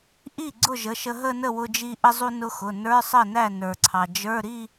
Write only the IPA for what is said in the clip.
ʔi˥˩ ɡ͡ǀʊ˥˩ʒə˩˧˩ʃə˧ ɦə˥˧nə˥˩wʊ˧d͡ʒi˧ ʔə˧zˤu˧ nʊ˧xʊ˩˧˩ nə˞˧˥˧sˤə˥˩næ˥˩ nə˞˩ǀʰɑ˩ d͡ʒə˞˧˥˧ ɾi˥˧

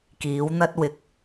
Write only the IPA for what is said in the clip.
kiː˨˥wn̪ɐ˥t̚wɪ˨k̚

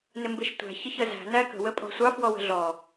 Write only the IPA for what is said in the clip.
nɪmbɪʃtʷæ̤ çɪçəzæ̤ nækə̤ wəpʼɔ̤sʷɑ fwɔwə̤ɮɔ

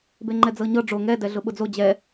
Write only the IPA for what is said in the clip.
beŋ͡ǃɛd͡zɤɲɤ ɖ͡ʐo ŋɛ dɛɮʊɓʊd͡zo d͡ʑɛ

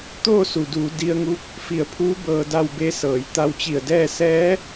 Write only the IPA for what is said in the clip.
t̪oː˥˨su˩duː˩˧ di˧ə̯ŋu˧˥k̚ | fi˧˩ə̯pʰuː˧˥ bɤː˧da˥˨wbe˧˥sɤː˩˧j t̪a˧wt͡ɕi˧˩ə̯dɛː˥˨ sɛː˧˥

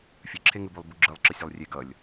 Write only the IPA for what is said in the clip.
fʲɯǁʰeŋɯ bulˠbuɡ͡ǁɯlˠǁɯ sʲɛlˠrʲe ɡʌlʲ

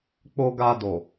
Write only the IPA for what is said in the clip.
k͡po˧ɡa˧ do˨

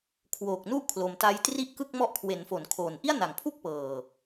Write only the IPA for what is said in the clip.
kʰwoː˨˩k̚nu˥˩ʔkʰlo˨˩m ta˦˥jtri˥˩ʔkɯ˥˩k̚ mɔ˦˥ʔkʰwe˩˦nfo˩˦n kʰoː˨˩nʔi˥˩a̯na˨˩ŋpʰu˥˩k̚ pɤː˨˩

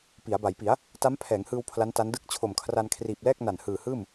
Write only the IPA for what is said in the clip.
pi˩˦a̯ba˩˦jpi˩˦a̯ | ta˦˥mpʰɛː˩˦ŋhɯː˧w pʰla˦˥nta˦˥n dɯ˦˥k̚t͡ɕʰo˨˩mkʰra˧n kʰriː˨˩p̚lɛː˥˩k̚ na˨˩nhɯː˨˩hɯː˥˩m

